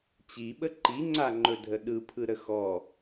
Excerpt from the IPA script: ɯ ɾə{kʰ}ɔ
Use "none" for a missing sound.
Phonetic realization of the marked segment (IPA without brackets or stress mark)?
x